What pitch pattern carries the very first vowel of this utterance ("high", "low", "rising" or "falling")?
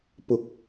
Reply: low